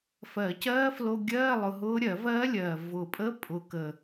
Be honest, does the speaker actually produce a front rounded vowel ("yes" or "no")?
no